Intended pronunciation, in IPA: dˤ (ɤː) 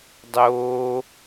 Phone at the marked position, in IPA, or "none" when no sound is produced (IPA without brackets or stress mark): oː